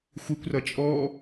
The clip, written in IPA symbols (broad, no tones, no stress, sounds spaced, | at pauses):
xʷ i kʷ r ʌ t͡ʃʼ ɔ